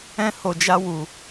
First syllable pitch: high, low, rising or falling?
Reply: high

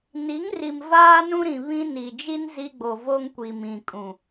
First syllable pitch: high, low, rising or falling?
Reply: rising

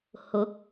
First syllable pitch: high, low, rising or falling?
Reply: rising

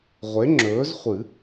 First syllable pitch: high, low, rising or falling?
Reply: rising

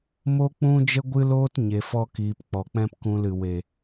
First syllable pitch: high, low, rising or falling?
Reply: high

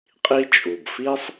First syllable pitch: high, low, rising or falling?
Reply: high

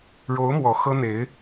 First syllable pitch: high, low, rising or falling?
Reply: rising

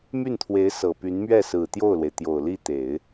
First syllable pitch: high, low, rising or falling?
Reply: falling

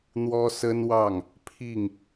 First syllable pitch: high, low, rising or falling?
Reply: high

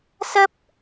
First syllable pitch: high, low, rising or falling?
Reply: high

